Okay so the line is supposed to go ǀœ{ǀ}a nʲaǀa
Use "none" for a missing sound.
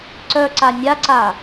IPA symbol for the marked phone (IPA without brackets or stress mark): ǀ